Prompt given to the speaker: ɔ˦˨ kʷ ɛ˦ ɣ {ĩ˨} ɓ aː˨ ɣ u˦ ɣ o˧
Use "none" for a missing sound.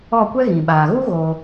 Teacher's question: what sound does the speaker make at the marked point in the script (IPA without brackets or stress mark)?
ĩ˨